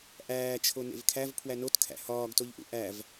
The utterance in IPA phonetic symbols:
ʔ æː t͡ʃʰ o n ḛ v kʰ æ v pʰ w æ n o t kʰ æ̰ h ɒː ɡ t o ʎ ʔ ṵ ʔ æ v

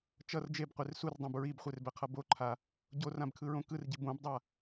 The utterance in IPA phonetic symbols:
t͡ʃ ʌ r d͡ʒ e b qʷ e r s u r dˤ õ b ɹ i b χʷ e r b ɛ qʰ ʌ b o ǃʰ a | ɟ o r ã b kʰ ɯ ɹ õ k ɯ r ɟ i b õ b dˤ a

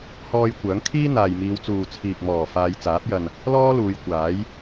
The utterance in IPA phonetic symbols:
h ɔː˧ j kʷ œː˨˥ ŋ kʰ iː˥ n̪ aː˨ j m iː˨˧ w t͡s uː˨ t͡sʰ iː˨ k̚ m ɔː˨˩ f aː˨˧ j t͡s aː˨˥ p̚ j ɐ˨ n | l ɔː˥ l uː˨˧ j kʷ aː˨˥ j

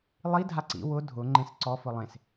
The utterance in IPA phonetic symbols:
lˠ i dʱ a ǀ ḭ w ʊ dʱ ʊ ŋ͡ǃ ẽ s ǀ ɔ f ʊ lˠ ẽ s

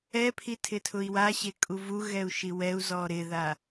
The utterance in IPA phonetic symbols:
ɛ pʰ i tʰ ɪ tʰ ʊ i̯ w a ɕ e kʼ u v u ɣ ɛ u̯ ʃ i w ɛ u̯ z ɔ ɾ ɪ ð a

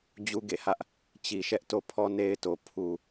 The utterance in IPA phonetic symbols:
d͡ʑ u˦ ɡ ḛ˦˨ h ä˦ ʔ | t͡ɕ i˨ ʃ ɛ˦ ʔ t o˦ pʰ ɔ˦ n e˦ ɪ̯ t o˨ pʰ u˨

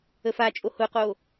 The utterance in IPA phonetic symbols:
ə f a t͡ʃʼ o h ʊ q o

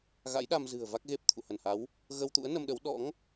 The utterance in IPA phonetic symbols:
ɣ a̰˧˥ j ɗ a˧ m z ɨ̤˨˩ ə̯ v a˦˥ k̚ ɣ e˦˥ p̚ t̪ʰ ṵ˧˨ h ə˧˩ n h a˨˦ w | ɣ ə˧ w t̪ ṵ˧˥ ə̯ n ə˧ m ɗ ə˨˦ w ɗ ɔ̰˧˥ ŋ

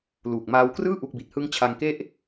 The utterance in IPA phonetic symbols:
l uː˨˩ k̚ m aː˧ w k r ɯː˥˩ ʔ u˦˥ k̚ b i˨˩ t̚ h ɯ˦˥ ŋ t͡ɕʰ a˧ ŋ k e˦˥ ʔ

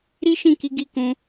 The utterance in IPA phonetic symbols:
ɾ i˦ ʃ ĩ˦˨ k i˨˦ ɡ i˦˨ k ũ˨˦

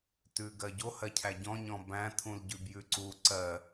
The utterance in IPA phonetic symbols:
t ʉ ɡ ɜ ɟ o h ɜ cʰ æ ɟ ɔ̃ ɲ ɔ̃ b æ̃ tʰ ũ l ɟ ʉ b j ʉ ǀ u ǀ ɜ

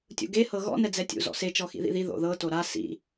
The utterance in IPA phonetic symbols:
tʲ ṵ ɡ e h ɤ ɣ ɔ̰ n ɛ d͡z ɛ tʲ ṵ z ɔ̰ s e t͡ʃ ɔ x ḭ ð ḭ ð i ð o̰ ð ɤ t o ɾ a s ḭ

